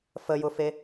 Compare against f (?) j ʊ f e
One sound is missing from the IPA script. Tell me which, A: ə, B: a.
A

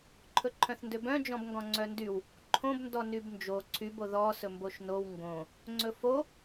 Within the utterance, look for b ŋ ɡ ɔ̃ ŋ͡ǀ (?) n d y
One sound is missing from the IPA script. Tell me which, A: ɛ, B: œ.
B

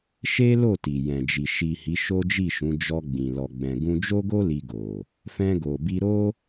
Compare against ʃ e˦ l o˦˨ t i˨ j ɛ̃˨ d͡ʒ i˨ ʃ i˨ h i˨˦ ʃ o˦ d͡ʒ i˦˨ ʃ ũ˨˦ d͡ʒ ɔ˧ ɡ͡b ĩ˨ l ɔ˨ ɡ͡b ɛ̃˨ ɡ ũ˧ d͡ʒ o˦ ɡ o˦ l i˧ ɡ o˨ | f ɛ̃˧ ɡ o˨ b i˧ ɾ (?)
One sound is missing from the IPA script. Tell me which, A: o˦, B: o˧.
A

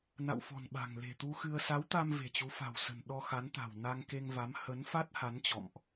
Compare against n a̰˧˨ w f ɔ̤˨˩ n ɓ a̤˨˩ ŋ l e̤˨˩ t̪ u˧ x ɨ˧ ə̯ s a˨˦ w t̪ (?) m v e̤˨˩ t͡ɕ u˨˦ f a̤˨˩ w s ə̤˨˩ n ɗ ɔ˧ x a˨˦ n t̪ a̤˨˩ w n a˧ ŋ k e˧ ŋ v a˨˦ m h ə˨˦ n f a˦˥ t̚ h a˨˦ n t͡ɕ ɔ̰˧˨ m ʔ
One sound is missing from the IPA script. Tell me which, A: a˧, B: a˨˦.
A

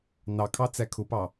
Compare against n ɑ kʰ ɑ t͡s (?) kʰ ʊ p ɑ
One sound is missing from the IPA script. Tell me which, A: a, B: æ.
B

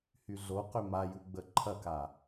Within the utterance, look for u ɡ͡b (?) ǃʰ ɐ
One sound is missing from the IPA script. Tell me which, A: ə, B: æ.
A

